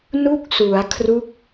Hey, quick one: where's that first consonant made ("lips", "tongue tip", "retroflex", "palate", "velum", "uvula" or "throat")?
tongue tip